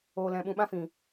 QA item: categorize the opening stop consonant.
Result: implosive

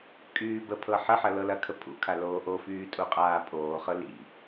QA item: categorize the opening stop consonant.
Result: ejective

